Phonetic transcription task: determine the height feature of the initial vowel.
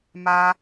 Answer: low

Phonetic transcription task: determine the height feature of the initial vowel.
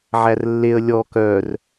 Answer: low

